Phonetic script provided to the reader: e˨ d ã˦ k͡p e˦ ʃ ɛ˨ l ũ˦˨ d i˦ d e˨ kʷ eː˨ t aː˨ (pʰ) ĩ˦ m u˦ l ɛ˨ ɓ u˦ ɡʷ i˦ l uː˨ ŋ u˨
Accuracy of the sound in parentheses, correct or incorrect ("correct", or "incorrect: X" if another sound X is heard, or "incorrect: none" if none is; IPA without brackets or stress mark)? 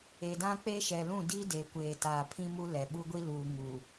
correct